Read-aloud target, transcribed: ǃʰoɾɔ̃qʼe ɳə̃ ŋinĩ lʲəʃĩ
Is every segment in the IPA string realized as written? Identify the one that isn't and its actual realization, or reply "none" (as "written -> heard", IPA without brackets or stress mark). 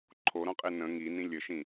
ɳ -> n